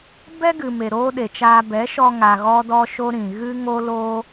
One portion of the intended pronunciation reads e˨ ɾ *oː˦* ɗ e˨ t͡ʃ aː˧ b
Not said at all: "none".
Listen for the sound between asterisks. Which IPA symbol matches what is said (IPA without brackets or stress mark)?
oː˦